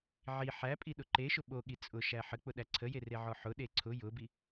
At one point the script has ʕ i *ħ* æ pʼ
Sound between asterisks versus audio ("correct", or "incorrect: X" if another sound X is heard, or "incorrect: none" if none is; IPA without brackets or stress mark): correct